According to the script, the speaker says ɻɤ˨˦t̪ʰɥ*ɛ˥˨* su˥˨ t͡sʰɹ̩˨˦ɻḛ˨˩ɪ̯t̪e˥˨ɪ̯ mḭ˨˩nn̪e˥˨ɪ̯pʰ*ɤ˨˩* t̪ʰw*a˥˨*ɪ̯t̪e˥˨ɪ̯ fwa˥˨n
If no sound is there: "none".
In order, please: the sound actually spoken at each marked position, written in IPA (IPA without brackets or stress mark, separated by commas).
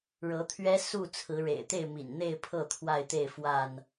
ɛ˦, ɤ˥˨, a˥˨